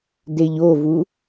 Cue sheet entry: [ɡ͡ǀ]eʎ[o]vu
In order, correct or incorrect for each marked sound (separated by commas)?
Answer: incorrect, correct